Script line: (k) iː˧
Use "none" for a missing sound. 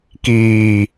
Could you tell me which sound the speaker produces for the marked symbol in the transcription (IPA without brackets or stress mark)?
k